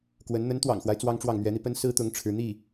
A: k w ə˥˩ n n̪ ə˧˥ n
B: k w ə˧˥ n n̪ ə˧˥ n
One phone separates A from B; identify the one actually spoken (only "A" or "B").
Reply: B